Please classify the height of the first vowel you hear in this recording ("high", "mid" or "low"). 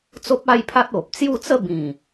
mid